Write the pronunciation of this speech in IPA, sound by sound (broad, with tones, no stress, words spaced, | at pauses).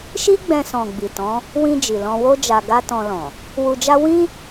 ʃi˦ɡ͡bɛ̃˧ sɔ̃˨ ɡ͡bi˨tɔ̃˨˦ | wĩ˧ d͡ʒi˨lɔ̃˧wo˦ d͡ʒa˧ɡa˦tɔ̃˧lɔ̃˨ | wu˧d͡ʒa˦ wĩ˦